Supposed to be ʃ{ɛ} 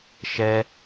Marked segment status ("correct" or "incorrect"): correct